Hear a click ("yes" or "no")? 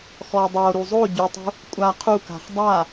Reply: no